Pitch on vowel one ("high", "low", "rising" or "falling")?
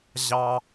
high